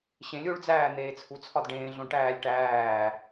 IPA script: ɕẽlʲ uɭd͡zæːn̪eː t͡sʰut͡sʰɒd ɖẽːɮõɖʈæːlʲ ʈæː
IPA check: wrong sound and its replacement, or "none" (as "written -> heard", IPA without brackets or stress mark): none